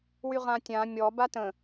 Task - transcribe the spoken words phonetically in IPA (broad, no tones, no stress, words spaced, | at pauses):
wyʁãtʲã mʲɔ batə̃